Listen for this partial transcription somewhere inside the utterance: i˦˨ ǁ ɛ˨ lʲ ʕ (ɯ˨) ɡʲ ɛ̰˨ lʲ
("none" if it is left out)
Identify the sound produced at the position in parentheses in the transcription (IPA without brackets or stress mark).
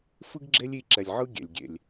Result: ɯ˦